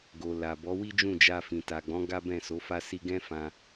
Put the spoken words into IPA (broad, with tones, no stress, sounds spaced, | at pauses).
ɡ o˨ l a˨ b ɔ˨˦ w i˦ d͡ʒ ũ˦˨ d͡ʒ a˧ f ĩ˨ t a˨ ɡ͡b ɔ̃˨˦ ɡ a˦ b ɛ̃˦˨ s o˨˦ f a˦ s i˧ ɡ ɛ̃˦ f ã˧